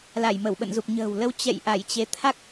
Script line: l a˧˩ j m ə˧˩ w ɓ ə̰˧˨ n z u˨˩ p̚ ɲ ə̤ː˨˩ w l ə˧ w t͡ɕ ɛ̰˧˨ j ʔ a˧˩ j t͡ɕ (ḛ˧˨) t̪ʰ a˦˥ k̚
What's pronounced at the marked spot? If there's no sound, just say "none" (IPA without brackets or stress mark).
e˨˦